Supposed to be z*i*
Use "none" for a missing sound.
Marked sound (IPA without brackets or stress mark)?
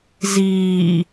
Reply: iː